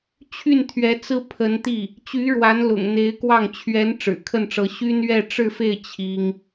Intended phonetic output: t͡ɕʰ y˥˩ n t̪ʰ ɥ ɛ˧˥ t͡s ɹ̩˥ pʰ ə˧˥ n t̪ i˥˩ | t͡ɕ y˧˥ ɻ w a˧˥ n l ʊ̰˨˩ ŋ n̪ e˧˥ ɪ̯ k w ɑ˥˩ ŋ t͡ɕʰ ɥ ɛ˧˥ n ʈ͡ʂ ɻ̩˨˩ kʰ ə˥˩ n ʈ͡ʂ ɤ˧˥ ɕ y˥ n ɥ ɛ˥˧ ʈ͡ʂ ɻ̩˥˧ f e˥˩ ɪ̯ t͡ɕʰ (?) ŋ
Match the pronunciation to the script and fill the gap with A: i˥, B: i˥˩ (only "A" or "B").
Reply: A